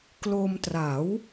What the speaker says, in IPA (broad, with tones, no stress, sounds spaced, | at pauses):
k l o˧ m t r a˩˦ w